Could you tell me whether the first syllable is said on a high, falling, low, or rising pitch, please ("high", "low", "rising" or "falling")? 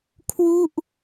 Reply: falling